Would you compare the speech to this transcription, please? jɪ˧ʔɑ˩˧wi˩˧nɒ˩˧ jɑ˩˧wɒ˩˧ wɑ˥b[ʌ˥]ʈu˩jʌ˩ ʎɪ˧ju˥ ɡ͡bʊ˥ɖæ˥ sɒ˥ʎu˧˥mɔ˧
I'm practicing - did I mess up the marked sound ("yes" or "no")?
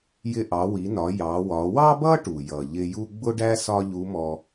no